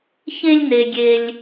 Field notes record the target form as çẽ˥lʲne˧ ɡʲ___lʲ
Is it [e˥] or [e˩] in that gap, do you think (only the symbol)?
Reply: e˥